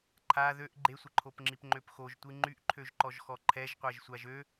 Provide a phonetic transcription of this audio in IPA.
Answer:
ǃʰa ðøʔ ɡ͡ǃesʷəǃʰopŋ͡ǁip ŋ͡ǃøpxoʒtʷi ŋ͡ǃyʔǃʰøʒǃɔʒxɔ ǃʰɛʒqʷɛʒsʷaʒ ø

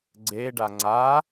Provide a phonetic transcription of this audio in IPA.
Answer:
ɡ͡ǀe ɖaŋ͡ǀa

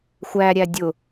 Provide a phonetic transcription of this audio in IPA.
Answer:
xʷæɾʲæ dʲʊ

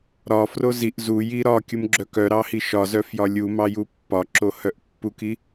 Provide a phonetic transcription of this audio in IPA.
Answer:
ɾɒfro ziʔ zuji ɾɒ kʲumɡ͡ǁœkœɾɑ hiʃɒzœ fjɒlʲumɑ jupːɒǁo hœʔpːuki

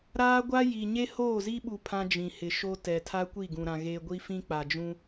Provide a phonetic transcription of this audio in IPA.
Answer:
ɾaː˦ɡʷa˦ji˨ ɲe˦hoː˦˨zi˦ɓu˨ pʰã˦d͡ʒĩ˨hɪ˨ ʃo˦tɛ˨ tʰa˦kʷi˦˨ɡũ˨ɾã˨ ɣe˨ ɡʷi˦fĩ˦k͡pa˨d͡ʒũ˦

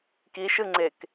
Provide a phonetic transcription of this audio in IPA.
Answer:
kiʃɯŋ͡ǀek

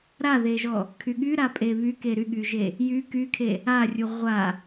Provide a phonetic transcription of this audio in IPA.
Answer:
ɾaðeʒɔ | kʰyɠyɾapʼe βyke ɾyɠyʒe | jy kykʰe | arʲu ʁʷa

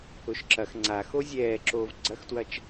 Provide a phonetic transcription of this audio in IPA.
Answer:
ʊʃǁɐx ŋ͡ǀaxo zʲɛːǁoːv ɡ͡ǀɐxtwɐt͡ʃ

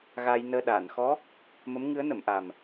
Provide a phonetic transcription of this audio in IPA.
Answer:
ɣaː˧jnəː˧ ɗaː˨˩˨nxɔ˧˥ | mə˧˥mŋɨ˧˥ə̯nə˨˩˨m ʔa˨˩m

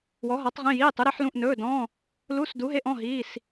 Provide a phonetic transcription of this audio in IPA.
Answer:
wɔ˨˥ɦɔ˨˥tˤ ʁĩ˧˥˧jiː˧˥˧tˤu˨˥ɾi˨˥ħ lũ˧˥˧ʔnɵː˧˥˧dɔ̃ː˧˥˧ | lu˧˥˧sdu˨˥ɦe˧˥˧ʔ ɔ̃˧˥˧ɦiː˧˥˧s

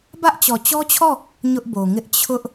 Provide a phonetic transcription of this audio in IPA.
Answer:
bä˦ʔ t͡ɕɔ˨t͡ɕɔ˦t͡ɕʰɔ˦˨ | ɲʊ˦ʔbo˨ŋɪ˦ʔ t͡ɕʰʊ˦ʔ

